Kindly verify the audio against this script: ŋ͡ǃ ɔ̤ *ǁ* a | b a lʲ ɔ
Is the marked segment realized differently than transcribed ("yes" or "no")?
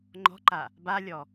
yes